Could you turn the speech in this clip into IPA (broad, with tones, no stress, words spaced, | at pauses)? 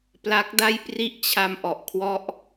pla˦˥k̚da˥˩jpri˥˩ʔt͡ɕʰa˧m ʔɔ˨˩ʔkʰwɔ˦˥ʔ